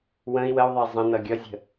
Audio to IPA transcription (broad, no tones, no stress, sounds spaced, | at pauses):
w ə̃ i̯ w ə u̯ ðˤ ə i̯ zˤ ə̃ n ʌ ɡʲ ʌ zʲ ə̤